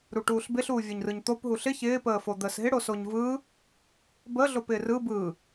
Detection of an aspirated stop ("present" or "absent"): absent